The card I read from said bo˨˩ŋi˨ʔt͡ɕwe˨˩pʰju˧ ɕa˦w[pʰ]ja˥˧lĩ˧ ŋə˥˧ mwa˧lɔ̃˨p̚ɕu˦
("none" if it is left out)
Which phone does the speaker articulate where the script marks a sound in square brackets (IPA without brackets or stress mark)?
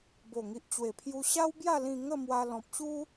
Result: b